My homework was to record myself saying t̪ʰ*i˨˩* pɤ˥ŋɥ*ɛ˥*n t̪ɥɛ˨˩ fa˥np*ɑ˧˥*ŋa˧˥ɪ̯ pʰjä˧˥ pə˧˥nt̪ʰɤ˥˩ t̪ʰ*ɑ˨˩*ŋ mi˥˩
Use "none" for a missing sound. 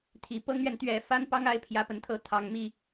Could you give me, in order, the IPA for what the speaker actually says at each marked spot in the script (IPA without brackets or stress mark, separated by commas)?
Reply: i˨˩, ɛ˨, ɑ˥, ɑ˨˩